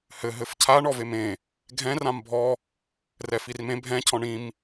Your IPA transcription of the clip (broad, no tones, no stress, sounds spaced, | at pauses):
h ɘ ɦ ɘ f cʰ a ɳ ɔ v e m ẽ | ɡʱ ɛ̃ r ã m bʱ ɔ | r ɛ f i r m ẽ bʱ ɛ̃ cʰ ɔ̃ ɳ ĩ m